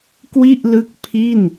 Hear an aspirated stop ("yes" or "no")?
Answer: yes